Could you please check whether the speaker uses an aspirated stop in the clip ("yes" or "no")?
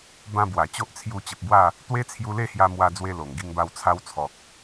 yes